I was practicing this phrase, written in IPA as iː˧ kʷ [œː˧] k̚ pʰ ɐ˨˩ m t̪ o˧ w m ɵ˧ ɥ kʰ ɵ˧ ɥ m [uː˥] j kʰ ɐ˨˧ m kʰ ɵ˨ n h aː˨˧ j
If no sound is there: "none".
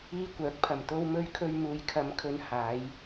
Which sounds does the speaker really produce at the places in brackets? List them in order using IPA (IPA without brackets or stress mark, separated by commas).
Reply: œː˨˥, uː˨